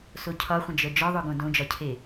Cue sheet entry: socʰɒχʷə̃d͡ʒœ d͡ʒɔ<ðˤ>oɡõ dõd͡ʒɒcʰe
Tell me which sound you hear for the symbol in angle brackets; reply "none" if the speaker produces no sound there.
ðˤ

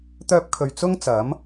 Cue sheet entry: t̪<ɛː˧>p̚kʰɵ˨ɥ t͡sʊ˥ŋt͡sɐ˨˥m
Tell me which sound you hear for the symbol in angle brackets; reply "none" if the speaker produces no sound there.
œː˧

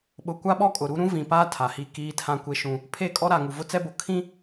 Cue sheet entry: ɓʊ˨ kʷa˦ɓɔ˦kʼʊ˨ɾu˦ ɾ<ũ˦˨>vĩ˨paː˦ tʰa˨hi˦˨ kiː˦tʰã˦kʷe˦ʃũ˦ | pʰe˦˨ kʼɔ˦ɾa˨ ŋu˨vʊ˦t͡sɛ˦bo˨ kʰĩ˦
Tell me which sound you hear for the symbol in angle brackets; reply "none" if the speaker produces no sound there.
ũ˦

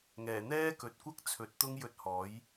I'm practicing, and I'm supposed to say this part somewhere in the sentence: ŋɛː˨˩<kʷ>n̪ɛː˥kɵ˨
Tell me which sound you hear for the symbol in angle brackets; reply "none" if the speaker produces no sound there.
none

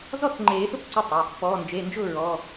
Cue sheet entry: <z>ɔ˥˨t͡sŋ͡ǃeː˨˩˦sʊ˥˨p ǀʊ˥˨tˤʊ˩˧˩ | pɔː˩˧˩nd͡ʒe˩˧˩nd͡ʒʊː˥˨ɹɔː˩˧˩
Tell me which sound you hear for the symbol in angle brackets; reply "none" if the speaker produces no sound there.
z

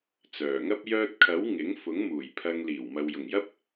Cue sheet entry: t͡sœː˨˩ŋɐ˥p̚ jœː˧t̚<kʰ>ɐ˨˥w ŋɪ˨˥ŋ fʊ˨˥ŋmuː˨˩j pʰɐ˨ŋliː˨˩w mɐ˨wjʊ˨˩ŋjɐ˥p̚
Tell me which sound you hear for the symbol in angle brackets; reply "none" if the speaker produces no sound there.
kʰ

